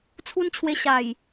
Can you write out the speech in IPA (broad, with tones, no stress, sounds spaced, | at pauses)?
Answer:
t͡sʰ u˦ n t͡ɕʰ w e˧ ɕ a˨˩ j